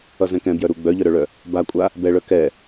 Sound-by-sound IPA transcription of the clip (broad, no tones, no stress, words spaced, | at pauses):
ʌzɛ̃kɛ̃ bjœɾu ɡ͡bœʎœɾœɭœ | bakʷʼa | bɛɭœ kɛ